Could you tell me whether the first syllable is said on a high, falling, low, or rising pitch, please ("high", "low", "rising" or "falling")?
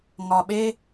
low